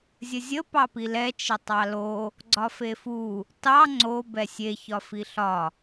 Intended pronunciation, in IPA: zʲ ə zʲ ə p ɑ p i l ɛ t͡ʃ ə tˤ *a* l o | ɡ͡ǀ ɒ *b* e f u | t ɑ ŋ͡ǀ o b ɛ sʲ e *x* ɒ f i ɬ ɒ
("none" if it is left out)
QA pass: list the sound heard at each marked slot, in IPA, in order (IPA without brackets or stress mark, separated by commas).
ɑ, f, ç